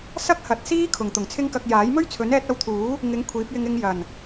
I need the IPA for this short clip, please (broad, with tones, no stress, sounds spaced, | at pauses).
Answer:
s ɐ˥ k̚ h ɐ˨˥ t̚ s iː˥ kʰ ʊ˨˩ ŋ t̪ ʊ˨˩ ŋ t͡sʰ ɪ˥ ŋ k ɐ˧ k̚ j aː˨˥ j m ɵ˥ ɥ t͡sʰ ɵ˨˥ n ɛː˧ t̚ ɐ˧ w t̪ʰ uː˨˥ | ŋ ɪ˨˥ ŋ kʷʰ iː˨˥ p̚ j ɪ˧ ŋ ɪ˧ ŋ j ɐ˨˩ n